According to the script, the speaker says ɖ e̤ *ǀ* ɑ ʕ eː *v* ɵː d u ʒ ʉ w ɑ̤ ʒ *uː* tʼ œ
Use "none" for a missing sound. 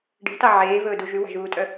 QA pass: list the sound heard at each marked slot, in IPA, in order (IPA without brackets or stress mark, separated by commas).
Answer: t, v, uː